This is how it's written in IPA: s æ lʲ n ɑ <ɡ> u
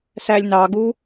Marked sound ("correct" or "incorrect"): correct